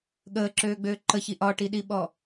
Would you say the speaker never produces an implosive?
no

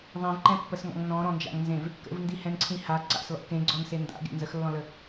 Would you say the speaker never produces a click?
no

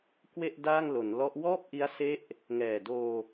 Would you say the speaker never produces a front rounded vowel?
yes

